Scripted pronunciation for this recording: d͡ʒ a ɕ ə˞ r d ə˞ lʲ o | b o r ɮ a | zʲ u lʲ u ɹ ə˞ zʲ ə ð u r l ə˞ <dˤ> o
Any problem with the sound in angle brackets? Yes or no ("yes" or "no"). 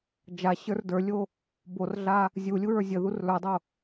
no